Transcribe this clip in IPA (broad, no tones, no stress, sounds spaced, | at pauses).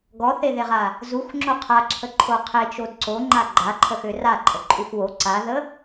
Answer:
ɡ ɔ θ e ð e ʁ a | z u x ŋ͡ǁ o qʰ a ǁʰ ə ǃʰ o qʰ e t͡ʃ o d ǀ o ŋ͡ǃ a ɡ͡ǃ a ǃʰ ə x ø r a ǃʼ ə ǃʼ u x w o ǀ a ð ə